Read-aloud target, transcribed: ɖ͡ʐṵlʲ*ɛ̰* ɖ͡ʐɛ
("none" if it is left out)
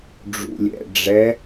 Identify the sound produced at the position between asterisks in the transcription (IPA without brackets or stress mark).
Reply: ɛ̰